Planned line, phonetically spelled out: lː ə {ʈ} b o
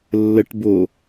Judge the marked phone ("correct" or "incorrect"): correct